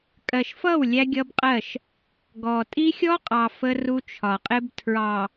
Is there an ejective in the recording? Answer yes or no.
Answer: yes